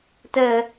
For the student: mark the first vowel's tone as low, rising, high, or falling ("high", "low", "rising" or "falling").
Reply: high